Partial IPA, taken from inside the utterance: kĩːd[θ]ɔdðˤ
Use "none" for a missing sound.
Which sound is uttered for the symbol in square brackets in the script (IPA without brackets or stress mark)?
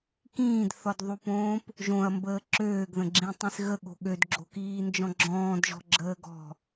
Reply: θ